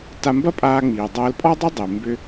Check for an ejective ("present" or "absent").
present